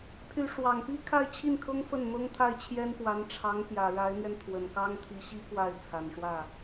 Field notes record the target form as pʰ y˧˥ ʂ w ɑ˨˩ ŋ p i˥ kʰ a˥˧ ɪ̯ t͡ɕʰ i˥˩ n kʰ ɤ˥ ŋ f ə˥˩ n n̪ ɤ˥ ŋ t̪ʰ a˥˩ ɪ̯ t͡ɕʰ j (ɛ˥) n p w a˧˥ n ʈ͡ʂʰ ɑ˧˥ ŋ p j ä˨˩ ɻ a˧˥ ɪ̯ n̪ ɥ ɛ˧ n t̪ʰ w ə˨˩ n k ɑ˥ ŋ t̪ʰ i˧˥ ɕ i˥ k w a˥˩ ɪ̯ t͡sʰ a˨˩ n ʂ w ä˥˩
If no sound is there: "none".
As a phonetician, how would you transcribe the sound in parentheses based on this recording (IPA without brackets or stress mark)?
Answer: ɛ˥